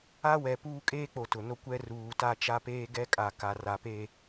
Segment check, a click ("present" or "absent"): absent